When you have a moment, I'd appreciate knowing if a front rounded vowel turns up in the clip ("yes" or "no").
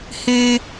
yes